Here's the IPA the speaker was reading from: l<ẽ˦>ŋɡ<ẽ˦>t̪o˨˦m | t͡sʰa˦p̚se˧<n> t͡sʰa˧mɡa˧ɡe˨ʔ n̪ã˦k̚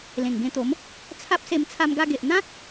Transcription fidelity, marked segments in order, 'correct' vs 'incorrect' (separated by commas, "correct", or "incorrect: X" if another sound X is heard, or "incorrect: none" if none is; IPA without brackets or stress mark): incorrect: ẽ˨˩, incorrect: ẽ˧, incorrect: m